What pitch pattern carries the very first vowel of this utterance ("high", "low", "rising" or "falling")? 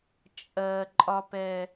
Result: low